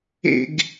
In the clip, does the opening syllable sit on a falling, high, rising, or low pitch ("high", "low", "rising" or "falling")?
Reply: high